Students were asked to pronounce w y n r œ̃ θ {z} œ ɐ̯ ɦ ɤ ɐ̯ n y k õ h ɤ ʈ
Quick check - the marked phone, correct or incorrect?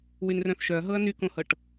incorrect